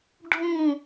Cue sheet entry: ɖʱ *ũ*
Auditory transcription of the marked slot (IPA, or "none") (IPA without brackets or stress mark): ũ